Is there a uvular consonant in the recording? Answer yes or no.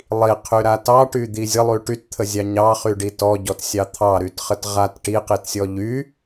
yes